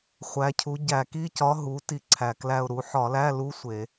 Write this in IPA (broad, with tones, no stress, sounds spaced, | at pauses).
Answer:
χʷ æ˩˧ cʰ u˩˧ ɟ æ˧˩˧ k i˧˥˧ c ɒ˧˥ ɦ u˩˧ t i˦˨ ǀʰ æ˨˩ k l æ˦˨ ʊ̯ ɾ u˩˧ ħ ɒ˧˩˧ l æ˧˥˧ l u˧˥ sʷ e˧˩˧